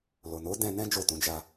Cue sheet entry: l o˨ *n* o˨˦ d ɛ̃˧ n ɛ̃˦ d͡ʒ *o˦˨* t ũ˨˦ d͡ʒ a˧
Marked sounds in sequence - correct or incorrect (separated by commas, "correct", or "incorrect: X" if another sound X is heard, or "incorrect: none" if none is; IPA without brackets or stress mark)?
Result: correct, correct